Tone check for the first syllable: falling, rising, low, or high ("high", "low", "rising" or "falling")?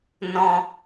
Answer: low